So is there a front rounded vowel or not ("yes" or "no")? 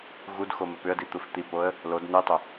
yes